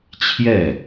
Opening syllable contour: falling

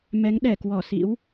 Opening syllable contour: rising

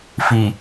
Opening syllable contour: low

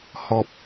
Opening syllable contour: low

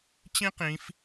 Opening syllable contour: high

